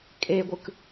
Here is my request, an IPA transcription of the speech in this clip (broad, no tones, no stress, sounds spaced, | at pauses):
kʼ e ɡʷ ɯ k